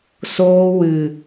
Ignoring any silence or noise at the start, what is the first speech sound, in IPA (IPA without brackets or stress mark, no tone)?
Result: s